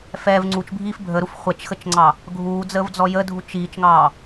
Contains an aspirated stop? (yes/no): no